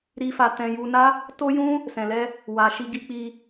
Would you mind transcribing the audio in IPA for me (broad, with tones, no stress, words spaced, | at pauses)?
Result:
ɾi˧fa˧tɛ̃˧ ju˧na˦ | to˦jũ˦ | sɛ̃˧lɛ˦ | wa˧ ʃi˧ɡi˧k͡pi˧